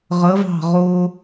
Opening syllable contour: rising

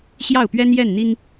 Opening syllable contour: falling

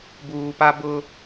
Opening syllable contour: low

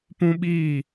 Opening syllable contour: high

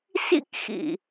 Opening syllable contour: high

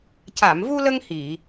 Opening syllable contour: low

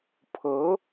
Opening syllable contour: rising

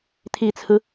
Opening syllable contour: low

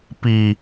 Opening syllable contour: low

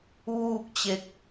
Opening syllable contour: falling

